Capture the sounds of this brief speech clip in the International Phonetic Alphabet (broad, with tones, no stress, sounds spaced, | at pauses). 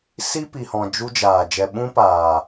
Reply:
s i˦ p i˨ h ɔ̃˨ d͡ʒ u˧ d͡ʒ aː˨ d͡ʒ ɛ˨ ɓ ũ˦ p aː˨